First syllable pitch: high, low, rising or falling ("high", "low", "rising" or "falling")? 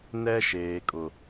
high